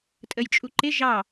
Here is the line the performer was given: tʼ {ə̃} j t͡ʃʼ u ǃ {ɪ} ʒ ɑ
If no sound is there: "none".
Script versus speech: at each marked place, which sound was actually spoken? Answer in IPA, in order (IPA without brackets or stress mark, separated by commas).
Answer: ə, ɪ